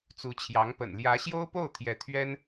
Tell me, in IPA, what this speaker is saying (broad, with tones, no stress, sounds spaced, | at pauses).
t͡s u˧˥ t͡ɕʰ j ɑ˧˥ ŋ p ə̰˨˩ n l j ä˧˥ ɕ j o˥ ʊ̯ p o˥˩ ʊ̯ t̪ʰ j ɛ˧˥ t̪ʰ ɥ ɛ˥ n